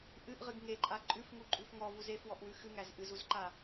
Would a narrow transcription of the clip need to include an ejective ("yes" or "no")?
yes